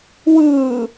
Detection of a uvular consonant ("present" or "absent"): absent